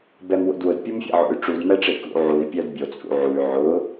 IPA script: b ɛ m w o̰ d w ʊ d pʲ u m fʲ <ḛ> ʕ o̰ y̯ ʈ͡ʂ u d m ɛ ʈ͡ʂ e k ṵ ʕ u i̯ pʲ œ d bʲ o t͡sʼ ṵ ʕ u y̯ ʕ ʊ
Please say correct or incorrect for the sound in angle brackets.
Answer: correct